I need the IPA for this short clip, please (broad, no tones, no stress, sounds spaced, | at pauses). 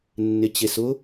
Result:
nː ɪ t͡ɕ e s ʊ